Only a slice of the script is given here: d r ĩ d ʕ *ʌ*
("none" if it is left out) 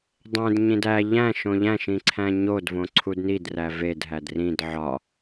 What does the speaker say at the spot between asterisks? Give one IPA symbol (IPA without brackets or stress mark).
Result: ɒ